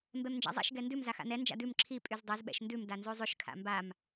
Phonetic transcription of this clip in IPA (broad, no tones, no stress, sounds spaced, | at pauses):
m b ɛ m n d͡ʒ a̰ zˤ ɛ̰ ʃ ɡ ɛ n d ʉ m z a x a̰ n ɛ n d͡ʒ a̰ d ʉ m ǁʰ i pʼ y z dˤ ɛ z ɓ ɛ̰ ʃ n d ʉ m d a n z ʉ zˤ ʉ ʃ kʰ a̰ m b a m